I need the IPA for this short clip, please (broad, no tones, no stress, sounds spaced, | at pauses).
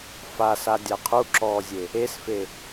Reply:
f a s a dʲ a qʰ u ǁ ɔː zʲ e | e s f e